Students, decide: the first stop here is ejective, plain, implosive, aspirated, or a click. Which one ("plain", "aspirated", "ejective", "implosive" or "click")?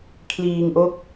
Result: aspirated